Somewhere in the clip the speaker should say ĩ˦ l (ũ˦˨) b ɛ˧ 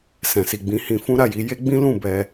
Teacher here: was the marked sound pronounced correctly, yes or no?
yes